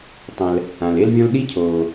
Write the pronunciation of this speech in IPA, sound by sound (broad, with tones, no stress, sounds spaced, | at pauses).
tˤ ɛ̃˩ l | ã˩ l e˥ l vʲ ɔ̃˥ l ɗ i˥ cʰ oː˩